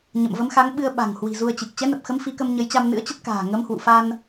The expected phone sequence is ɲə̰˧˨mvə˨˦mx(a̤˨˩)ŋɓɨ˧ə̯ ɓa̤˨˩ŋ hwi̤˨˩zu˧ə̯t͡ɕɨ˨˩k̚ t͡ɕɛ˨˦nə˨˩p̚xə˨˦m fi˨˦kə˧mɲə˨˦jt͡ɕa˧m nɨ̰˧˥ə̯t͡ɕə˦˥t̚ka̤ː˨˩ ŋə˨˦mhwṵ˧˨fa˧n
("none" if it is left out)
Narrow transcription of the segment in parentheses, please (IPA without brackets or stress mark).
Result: a˨˦